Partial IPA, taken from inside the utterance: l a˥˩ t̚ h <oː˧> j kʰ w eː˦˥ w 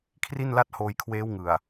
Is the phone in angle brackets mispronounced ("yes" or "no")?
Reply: no